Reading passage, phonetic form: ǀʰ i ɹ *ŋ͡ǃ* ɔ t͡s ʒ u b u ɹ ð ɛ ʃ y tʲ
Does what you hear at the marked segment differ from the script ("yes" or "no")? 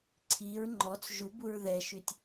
no